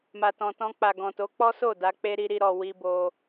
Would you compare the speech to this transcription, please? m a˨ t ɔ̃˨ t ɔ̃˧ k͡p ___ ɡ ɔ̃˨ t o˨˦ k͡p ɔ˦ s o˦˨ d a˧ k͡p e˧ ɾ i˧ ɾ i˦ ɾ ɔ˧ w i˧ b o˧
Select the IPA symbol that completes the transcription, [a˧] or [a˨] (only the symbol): a˨